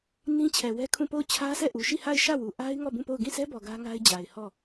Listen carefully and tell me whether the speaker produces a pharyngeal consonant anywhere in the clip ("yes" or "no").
no